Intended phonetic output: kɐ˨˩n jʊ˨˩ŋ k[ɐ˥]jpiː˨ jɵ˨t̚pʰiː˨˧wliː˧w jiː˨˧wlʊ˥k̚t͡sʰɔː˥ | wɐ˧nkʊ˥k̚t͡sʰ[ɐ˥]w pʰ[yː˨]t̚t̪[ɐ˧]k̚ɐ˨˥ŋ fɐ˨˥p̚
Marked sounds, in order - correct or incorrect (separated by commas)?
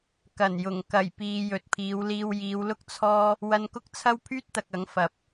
incorrect, correct, incorrect, incorrect